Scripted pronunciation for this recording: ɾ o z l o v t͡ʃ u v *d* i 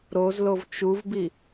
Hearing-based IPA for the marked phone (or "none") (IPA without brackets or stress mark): b